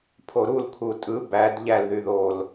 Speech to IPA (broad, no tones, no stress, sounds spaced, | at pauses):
pʰ o ɾ u l kʰ u tʼ ɯ b æ d ʎ æ l ð y ð o l